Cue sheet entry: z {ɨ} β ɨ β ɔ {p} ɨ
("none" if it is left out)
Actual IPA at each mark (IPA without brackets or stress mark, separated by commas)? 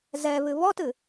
ɛ, t